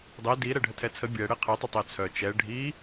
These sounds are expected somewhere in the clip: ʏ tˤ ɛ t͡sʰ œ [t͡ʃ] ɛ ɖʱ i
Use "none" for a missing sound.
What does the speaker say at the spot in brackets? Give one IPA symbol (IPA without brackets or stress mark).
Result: t͡ʃ